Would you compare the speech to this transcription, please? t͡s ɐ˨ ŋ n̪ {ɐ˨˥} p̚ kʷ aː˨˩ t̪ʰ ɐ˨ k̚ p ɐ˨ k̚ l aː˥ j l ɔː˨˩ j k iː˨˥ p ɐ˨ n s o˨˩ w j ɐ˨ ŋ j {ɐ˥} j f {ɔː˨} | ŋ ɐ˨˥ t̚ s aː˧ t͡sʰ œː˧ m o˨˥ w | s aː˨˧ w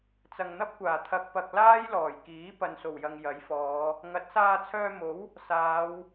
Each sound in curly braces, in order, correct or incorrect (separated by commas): incorrect, incorrect, incorrect